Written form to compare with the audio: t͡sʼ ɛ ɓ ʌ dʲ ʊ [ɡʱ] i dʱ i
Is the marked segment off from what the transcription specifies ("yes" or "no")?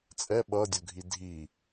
no